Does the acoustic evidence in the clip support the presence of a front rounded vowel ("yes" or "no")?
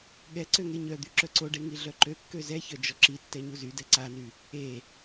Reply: yes